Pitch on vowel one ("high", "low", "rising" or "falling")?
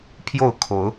falling